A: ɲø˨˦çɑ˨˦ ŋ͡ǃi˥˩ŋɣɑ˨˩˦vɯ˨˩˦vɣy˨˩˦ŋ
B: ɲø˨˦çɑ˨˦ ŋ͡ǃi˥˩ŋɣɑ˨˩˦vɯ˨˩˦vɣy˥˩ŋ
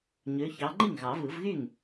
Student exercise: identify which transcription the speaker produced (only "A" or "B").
B